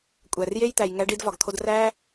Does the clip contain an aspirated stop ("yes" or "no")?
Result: yes